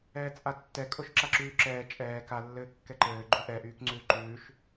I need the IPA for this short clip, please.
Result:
ɛː t͡sʼ a tː ɛ kʼ o ʃ ǁ a ǁ yː ǁ ɛː t͡ʃʼ ɛː k a lː ɘː kː ɛ ǃ ɘː ɡ͡ǃ y ʔ ɛ ʔ yː k ŋ͡ǀ ʉː ǃ ʉː ʃ

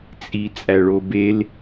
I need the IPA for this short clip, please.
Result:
t͡sʼ i t͡sʼ æ ɭ o b e l

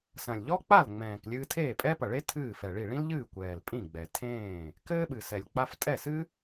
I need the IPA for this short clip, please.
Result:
s ɐ̃˨˩ lʲ ʎ ɔ˥ k͡p a˥˩ l ŋ͡m ɛ̃ː˨˩ k lʲ ɨː˧ tʰ eː˥˩ pʼ ɛ˥ p ɐ˨˩ ɭ e˥ tʰ ɨː˥˩ f ɛ˨˩ ɭ i˥˩ ɭ ĩ˥ l ʎ ɨː˥˩ kʷ ɛː˨˩ l pʼ ĩ˥˩ ɡ͡b ɛ˨˩ tʰ ẽː˥˩ | k ɘː˥ ɓ ɨ˨˩ s ɛ˨˩ lʲ k͡p a˧ f tʼ ɛ˥˩ s ɨ˥

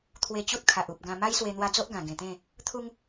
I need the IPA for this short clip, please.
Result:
t̪ʰ w e˧ t͡ɕ u˦ t̚ kʰ a˨ ʔ u˨ p̚ ɡ ã˧ m a˦ j s w e˧ n̪ w a˧ d͡z o˦ ʔ ɡ ã˨˩ ɡ ẽ˨˩ t̪ ẽ˥˧ | t̪ʰ u˦ ŋ

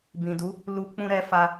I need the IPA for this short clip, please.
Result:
b ĩ˨ d u˨˦ | l u˦ k͡p ũ˧ ɾ ɛ˧ f a˧

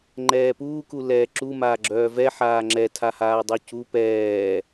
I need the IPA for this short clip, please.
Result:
ŋ͡ǃ ɛː p uː k u l ɛː ǁ u m aː ɡ͡ǁ œː v ɛ ħ aː ŋ͡ǁ ɛ tʰ a h aː dˤ u c u p ɛː

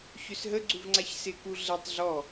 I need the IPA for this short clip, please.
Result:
ç ø s ɦ ə ɡ͡ǀ u v ŋ͡ǀ a ç s ɪ k u ɮ ɛ tˤ ɮ ɔ

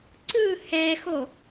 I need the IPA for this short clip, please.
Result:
ǀ ɯ h ɛ x o

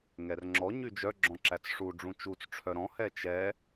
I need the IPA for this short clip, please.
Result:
ŋ ɛ r ŋ͡ǁ ɔ ɲ y d͡ʒ œ ɡ͡ǁ ɔ̃ ǁ æ t͡s ʂ u ɖ͡ʐ ũ t͡ʃ u t͡s ʈ͡ʂʰ œ ɾ ɔ̃ h ɛ t͡ʃ ɛ

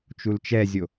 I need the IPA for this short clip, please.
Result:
t͡ʃ u l t͡ʃ ɛ zʲ o

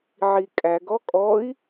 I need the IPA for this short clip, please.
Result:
ʕ i kʼ æ ɡ ɔ kʼ ɔ i̯

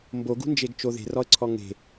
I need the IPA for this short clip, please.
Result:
m b o ɡ ṳ n d͡ʒ e ɡ t͡ʃ o ð e̤ r ɔ ə̯ ǀʰ ɔ ŋ e̤

